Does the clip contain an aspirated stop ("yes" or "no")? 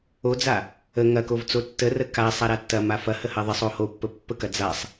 no